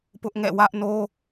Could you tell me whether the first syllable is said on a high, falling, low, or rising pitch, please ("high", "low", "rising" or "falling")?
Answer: high